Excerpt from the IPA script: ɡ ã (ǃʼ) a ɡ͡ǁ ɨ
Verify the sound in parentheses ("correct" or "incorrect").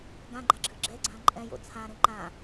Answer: incorrect